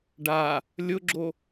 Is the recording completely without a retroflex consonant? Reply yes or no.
no